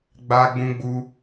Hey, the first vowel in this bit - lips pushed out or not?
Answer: no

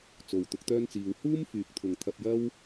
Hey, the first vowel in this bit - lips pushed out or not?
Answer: yes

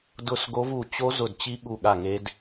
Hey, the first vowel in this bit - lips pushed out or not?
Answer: yes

